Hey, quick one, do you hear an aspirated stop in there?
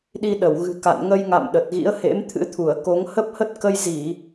yes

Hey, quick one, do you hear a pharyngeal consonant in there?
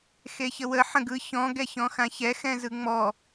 yes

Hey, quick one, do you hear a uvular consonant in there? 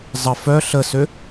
no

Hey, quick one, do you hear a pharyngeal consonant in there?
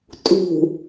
no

